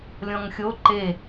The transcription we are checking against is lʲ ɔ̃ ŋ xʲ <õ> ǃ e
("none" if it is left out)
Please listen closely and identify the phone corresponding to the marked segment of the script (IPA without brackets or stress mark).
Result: o